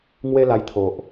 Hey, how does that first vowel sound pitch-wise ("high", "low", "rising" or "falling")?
high